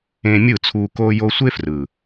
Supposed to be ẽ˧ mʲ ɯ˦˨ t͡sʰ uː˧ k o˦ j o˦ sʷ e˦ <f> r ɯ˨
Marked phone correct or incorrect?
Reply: correct